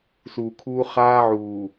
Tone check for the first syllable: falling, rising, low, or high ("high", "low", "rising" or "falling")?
low